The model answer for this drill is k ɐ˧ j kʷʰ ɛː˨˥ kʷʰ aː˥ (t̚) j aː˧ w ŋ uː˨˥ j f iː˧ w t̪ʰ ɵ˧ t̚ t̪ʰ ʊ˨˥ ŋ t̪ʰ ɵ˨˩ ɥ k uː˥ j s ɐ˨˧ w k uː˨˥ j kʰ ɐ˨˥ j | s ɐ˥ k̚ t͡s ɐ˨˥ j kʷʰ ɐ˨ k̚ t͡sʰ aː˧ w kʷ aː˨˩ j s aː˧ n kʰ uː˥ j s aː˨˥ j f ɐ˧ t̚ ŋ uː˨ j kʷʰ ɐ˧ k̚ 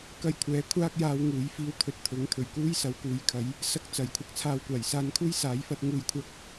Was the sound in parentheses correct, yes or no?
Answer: no